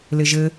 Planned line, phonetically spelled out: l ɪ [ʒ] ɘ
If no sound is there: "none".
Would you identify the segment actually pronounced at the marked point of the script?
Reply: ʒ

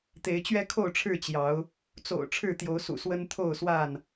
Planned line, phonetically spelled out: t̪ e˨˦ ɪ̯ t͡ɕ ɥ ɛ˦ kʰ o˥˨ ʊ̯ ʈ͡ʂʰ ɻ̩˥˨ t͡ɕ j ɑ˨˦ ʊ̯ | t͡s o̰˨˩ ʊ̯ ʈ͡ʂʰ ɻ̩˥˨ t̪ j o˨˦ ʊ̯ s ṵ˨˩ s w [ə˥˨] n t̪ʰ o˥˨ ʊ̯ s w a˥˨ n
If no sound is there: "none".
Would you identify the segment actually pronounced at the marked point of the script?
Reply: ə˦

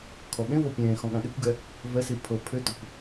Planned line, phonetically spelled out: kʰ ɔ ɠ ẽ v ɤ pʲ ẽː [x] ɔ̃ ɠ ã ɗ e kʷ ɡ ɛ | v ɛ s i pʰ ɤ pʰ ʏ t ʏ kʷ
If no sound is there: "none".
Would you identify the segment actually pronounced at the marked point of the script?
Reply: x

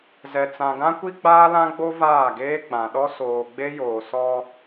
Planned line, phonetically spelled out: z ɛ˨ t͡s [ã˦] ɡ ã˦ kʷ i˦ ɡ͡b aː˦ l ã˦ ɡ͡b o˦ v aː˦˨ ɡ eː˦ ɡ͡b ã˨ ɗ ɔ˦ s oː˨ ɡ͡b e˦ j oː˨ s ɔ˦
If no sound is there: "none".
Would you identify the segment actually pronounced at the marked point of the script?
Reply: ã˨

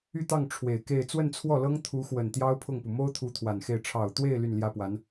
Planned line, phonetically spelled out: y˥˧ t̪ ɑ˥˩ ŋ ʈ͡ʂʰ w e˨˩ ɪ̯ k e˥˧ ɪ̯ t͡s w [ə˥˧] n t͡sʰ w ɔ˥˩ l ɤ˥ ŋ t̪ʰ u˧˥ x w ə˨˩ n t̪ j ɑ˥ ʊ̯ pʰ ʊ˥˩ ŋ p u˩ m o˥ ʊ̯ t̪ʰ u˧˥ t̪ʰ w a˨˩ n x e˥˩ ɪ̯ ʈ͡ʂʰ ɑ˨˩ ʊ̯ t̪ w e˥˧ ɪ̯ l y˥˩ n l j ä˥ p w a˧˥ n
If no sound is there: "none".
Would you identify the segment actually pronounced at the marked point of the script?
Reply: ə˥˧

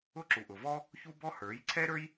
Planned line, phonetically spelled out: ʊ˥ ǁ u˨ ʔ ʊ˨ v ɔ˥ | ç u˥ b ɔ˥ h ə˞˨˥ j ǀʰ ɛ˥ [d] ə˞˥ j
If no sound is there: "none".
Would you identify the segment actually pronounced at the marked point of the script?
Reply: ɾ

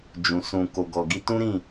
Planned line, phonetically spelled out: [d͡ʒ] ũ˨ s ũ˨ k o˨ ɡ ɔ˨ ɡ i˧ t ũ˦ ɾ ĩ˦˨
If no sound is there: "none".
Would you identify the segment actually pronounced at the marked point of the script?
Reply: d͡ʒ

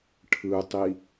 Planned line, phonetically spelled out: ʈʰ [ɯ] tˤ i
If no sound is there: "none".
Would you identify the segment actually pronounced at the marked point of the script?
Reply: ɯ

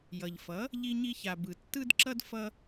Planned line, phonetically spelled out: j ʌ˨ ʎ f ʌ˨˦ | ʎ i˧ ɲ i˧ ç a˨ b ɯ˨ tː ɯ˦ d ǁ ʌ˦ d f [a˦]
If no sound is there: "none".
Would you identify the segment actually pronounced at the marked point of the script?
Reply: ʌ˦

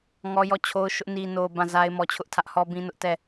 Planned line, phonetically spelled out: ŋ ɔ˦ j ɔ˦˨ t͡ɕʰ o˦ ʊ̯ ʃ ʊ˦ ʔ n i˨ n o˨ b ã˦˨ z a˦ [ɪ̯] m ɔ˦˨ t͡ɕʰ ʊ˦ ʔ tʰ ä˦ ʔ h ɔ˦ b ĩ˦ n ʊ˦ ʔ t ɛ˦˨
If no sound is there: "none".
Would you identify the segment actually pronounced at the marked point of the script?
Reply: ɪ̯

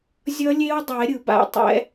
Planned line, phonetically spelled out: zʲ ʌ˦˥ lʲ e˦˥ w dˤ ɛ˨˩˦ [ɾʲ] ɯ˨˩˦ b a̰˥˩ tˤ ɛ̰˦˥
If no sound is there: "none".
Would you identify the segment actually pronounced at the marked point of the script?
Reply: ɾʲ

